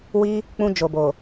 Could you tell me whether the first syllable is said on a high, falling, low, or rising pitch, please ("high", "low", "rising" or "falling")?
high